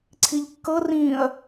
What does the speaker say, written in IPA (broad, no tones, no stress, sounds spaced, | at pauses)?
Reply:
ǀʰ i ʎ kː ɤ r ĩː ɐ̯